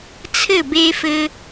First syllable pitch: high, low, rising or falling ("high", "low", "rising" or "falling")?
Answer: falling